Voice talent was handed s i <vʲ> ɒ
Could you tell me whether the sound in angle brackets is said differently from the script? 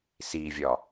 no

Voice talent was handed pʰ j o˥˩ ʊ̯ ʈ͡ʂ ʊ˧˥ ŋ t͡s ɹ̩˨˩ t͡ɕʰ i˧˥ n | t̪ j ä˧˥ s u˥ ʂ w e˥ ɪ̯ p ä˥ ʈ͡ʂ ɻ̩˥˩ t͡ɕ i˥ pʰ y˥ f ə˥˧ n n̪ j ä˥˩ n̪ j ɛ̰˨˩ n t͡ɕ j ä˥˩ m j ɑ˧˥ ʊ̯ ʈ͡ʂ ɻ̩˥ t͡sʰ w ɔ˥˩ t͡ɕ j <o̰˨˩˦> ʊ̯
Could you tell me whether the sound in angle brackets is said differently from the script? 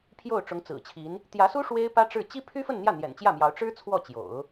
no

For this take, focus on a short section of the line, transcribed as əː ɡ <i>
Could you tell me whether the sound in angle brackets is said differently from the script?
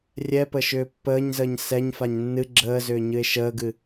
yes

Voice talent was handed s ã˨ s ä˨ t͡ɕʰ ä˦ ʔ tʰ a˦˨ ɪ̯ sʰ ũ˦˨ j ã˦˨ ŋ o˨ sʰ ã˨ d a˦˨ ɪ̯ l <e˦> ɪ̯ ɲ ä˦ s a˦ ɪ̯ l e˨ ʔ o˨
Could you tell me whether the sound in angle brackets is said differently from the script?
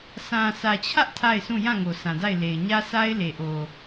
yes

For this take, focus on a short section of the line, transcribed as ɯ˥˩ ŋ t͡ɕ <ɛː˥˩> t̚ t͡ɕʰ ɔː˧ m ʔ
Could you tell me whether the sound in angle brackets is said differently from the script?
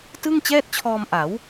no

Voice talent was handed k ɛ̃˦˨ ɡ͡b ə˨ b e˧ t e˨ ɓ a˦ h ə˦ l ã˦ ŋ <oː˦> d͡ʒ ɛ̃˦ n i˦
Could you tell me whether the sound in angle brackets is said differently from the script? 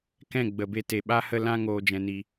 no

